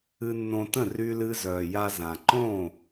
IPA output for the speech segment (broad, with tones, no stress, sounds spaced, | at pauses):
ɨ˧ nː õ˧ t ə̃˥˩ r y˧ l ɨ˧ z œː˩ j a˧ z ã˩ ǃ õ˥˩